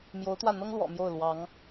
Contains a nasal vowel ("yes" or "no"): no